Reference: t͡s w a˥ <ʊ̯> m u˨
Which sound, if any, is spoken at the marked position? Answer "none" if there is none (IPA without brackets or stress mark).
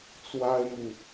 ɪ̯